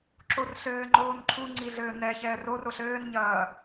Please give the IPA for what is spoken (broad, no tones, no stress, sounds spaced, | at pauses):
ǁ o r ɬ ɘː ŋ͡ǃ oː n ǃʰ u ŋ͡ǀ i ɮ ɘː n ɛ ç ɛː r o r o ɬ ɘː n ɲ ɐː